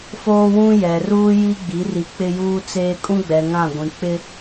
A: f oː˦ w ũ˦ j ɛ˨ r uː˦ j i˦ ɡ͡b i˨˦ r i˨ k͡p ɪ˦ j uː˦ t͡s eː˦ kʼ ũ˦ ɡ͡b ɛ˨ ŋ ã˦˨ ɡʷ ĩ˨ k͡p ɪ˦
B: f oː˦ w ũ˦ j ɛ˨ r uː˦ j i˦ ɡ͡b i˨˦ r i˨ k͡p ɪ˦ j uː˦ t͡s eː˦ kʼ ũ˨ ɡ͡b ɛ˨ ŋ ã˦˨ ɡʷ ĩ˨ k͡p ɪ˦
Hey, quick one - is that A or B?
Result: A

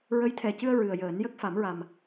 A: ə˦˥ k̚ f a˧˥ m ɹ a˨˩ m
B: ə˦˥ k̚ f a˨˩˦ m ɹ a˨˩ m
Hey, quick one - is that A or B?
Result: B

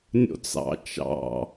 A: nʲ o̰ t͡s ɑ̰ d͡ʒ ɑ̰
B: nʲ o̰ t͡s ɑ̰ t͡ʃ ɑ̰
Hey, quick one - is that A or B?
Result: B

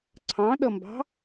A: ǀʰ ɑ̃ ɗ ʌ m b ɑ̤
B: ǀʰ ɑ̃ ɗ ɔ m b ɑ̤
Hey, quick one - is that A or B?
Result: A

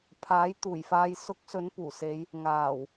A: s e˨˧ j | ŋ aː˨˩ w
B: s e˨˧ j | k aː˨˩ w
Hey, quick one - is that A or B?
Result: A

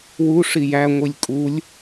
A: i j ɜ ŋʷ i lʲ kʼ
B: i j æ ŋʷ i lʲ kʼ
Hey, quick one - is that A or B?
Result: B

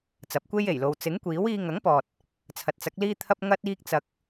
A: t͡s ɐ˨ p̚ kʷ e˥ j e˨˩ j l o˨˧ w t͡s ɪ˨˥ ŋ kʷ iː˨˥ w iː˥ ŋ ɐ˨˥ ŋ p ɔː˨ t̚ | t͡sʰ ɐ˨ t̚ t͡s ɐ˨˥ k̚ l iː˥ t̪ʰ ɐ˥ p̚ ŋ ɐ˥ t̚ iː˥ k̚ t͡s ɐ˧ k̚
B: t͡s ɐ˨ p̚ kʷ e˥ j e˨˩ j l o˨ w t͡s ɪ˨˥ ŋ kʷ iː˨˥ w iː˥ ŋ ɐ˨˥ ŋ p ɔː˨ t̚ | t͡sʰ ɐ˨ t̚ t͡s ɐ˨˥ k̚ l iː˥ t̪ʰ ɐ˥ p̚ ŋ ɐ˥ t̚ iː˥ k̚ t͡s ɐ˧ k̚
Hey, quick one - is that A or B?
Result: A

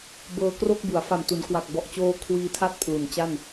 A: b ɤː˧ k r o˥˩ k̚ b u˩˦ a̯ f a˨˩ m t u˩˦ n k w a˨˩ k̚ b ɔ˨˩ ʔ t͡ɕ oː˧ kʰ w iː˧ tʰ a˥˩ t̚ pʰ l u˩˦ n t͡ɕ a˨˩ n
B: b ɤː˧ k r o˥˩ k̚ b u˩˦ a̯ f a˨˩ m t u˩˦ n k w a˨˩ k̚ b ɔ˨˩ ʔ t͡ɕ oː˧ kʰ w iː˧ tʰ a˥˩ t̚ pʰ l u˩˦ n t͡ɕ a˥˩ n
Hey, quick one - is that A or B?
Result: B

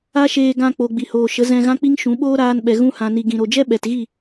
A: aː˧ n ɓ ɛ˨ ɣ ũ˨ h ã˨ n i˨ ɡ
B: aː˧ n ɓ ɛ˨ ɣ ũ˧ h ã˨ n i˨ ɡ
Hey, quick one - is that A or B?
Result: B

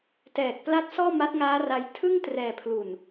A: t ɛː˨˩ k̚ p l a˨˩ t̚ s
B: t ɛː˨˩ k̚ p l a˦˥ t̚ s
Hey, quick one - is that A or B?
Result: B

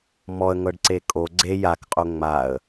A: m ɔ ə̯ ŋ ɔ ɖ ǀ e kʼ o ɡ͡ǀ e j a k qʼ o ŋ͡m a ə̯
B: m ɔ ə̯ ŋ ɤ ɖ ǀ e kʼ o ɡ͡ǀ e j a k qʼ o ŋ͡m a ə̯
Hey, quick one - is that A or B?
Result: B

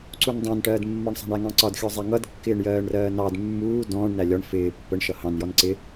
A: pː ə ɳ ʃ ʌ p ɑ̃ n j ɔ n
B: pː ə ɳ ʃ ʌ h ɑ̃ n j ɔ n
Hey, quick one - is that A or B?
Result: B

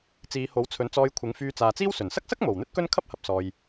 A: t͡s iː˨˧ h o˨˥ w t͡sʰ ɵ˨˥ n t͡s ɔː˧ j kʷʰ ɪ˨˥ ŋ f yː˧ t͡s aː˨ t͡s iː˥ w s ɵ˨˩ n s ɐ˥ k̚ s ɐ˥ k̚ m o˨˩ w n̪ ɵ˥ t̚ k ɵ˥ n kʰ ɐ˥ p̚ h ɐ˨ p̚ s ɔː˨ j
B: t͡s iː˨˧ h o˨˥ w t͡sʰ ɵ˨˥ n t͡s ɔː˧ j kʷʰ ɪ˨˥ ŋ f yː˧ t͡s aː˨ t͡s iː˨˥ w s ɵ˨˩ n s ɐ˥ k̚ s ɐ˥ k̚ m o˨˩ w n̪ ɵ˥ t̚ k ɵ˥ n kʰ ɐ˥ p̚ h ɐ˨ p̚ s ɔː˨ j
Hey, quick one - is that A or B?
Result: A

